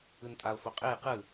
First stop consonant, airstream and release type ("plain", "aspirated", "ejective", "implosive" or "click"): ejective